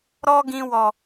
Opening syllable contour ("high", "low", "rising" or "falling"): high